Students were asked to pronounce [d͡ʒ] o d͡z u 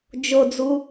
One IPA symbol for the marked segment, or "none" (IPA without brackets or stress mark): d͡ʒ